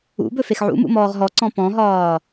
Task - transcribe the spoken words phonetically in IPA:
ṵbɵ fexʕṵmṵ mɔːʁɦɔǀɔ̃ pɔ̃ɦɒː

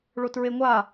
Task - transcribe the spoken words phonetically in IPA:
ɭotɹeŋʷa

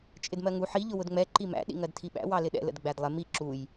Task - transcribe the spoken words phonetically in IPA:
t͡ʃʼɪdmɜŋu ħi ʎʊwʊdŋ͡mɛ ǃimæ̰ ɗḭŋɜdtʰiɓæ̰ wɑlɪɗɛ̰ lə̰dɡ͡bædlˠɪ mi ǁuj

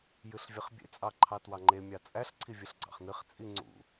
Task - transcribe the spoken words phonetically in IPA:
jɨɬvʲɨχbʲḛ t͡sʼɑǃʰɑtwɑŋ͡ǃe mʲɑt͡sʼæɬ ǀʰivʲɨɬɡ͡ǀɑ̰χnɨχ t͡sʼiŋ͡ǀṵ

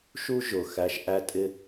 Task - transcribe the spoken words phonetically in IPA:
ʃu˥ʒʊ˩ xæ˧ʃʔæ˥ tʼɪ˥

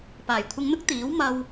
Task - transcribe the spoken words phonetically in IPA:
paː˨˩jkʷʰɪ˨˧ŋn̪ʊ˥k̚ t̪iː˨˥w mɐ˧w

